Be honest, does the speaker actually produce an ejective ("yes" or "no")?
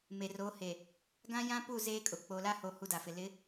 yes